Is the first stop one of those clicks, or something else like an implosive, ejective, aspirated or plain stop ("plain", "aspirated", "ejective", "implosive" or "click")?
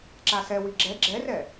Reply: click